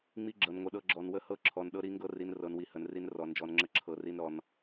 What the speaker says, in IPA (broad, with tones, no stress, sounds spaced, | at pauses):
ŋ͡m i˦ ɡ͡ǁ ɤ˨ n ŋʷ ə˨ ɗ ɤ˦ ɡ͡ǁ ɔ˨ n w ə˦ h ɤ˦ ǁʰ ɔ˨ n ɗ ɤ˦ ɾ i˦ ŋ ɡ ɤ˦ r i˨ n r ɤ˨ n w i˨ h ə˨ n r i˦ n r ɔ˨ n d͡ʒ ɔ˨ n ŋ͡ǁ ə˦ ǁʰ ɤ˨ r i˦ n ɾ ɔ˨ n